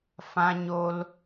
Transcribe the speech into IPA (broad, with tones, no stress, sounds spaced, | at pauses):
f ã˧ ɲ o˧ l